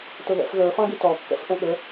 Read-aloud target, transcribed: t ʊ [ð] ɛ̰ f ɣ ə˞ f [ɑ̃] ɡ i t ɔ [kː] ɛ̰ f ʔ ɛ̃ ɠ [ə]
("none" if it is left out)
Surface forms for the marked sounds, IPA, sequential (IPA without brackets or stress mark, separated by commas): ð, ɑ̃, kː, ə